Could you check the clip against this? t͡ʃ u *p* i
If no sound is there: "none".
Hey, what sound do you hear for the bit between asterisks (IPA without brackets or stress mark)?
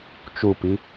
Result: p